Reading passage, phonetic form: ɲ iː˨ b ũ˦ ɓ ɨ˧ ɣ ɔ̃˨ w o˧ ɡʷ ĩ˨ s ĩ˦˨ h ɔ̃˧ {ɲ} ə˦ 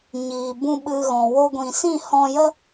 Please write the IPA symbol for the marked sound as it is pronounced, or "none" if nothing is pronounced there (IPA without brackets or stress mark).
j